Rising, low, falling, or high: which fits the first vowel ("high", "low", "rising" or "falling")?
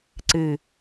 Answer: low